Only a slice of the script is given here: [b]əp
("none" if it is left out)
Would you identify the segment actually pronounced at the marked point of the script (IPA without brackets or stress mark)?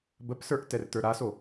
b